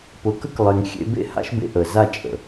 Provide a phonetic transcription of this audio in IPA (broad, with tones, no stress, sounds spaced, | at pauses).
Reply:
p ʊ˨ k ə˦ k lˠ e˨ ŋ xʲ ḛ˧ b ḛ˦˨ h a̰˦ ʃ b ḛ˧ ʔ ə˨ z a˦˨ t͡ʃʼ ə̰˨